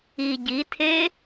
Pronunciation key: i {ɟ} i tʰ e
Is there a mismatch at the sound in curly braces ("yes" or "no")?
no